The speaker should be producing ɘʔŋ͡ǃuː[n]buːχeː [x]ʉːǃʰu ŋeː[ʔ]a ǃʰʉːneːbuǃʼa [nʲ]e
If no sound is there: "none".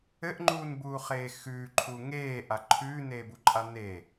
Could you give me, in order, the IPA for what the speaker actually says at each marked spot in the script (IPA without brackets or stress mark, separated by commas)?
n, x, ʔ, n